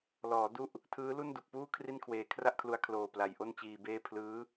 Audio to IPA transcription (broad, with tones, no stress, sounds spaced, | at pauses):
l ɔː˩˦ d u˥˩ ʔ | tʰ ɯː˦˥ l u˥˩ n d u˨˩ k̚ p uː˥˩ kʰ r i˥˩ n kʰ w eː˧ kʰ r a˥˩ ʔ kʰ l u˧ a̯ kʰ l oː˨˩ p l a˨˩ j ʔ o˥˩ n t͡ɕ iː˧ b eː˥˩ pʰ l ɯː˦˥